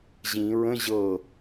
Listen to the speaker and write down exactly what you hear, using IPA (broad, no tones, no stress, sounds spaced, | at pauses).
ʑ ĩ ɹ ə̃ ʑ ɤ